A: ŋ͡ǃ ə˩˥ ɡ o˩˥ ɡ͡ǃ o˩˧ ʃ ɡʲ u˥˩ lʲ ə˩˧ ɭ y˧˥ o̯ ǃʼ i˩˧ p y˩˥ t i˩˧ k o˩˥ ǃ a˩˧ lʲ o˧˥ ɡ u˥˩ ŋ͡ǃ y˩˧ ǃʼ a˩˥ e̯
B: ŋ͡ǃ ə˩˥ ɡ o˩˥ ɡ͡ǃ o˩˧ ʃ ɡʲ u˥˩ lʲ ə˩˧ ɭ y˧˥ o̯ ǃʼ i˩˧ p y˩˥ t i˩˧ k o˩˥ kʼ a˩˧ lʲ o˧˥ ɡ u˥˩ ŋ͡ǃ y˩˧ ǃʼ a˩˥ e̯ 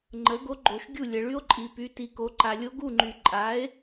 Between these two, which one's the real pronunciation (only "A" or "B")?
A